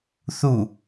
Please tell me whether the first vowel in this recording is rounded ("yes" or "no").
yes